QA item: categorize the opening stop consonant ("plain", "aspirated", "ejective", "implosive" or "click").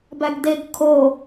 plain